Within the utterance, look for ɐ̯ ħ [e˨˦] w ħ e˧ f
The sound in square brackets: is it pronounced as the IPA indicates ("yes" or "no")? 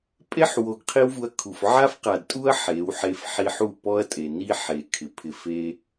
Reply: yes